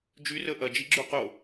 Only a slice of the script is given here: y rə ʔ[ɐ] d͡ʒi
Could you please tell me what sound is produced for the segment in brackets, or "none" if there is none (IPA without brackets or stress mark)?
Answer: ɐ